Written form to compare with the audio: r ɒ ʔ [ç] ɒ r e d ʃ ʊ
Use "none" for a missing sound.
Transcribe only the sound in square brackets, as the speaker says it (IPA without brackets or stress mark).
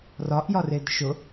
j